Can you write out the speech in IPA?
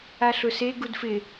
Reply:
a ɬ ʊ s e ɡ u d f ɪ

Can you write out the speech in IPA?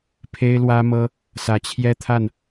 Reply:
pʰ e˥ ɪ̯ l w ä˥ m ɤ˥ | s ä˨˩ t͡ɕʰ j ɛ˥ t̪ʰ a˥˩ n

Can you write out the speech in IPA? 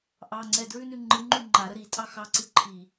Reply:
ʔ ɑ ŋ͡ǀ ɛ d ɹ ʉ n ʉ ŋ͡ǃ ɨ ŋ͡ǃ ʉ ŋ͡ǃ a ɾ ə ɾ i tʼ ɑ x ɑ ǀ ɨ ǃʰ i

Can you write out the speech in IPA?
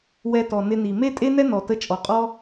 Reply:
w ɛ˧ t ɔ˨ n ɪ˧ n i˨ m e˦ tʼ e˦ n ɛ˦ n ɔ˨ t ə˧ t͡ʃʼ ɔ˨ qʼ ɔ˦

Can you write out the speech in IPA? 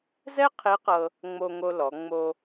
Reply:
z ɛ˥ qʰ e˧˥ q ɤ˧ | ŋ͡m o˧ ŋ o˧ l ɔ˩˧ ŋ͡m o˧

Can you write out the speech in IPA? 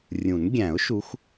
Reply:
rʲ ũ˨˩˦ n ɡʲ æ̃˨˩˦ ʊ̯ ʃ u˨˦ x

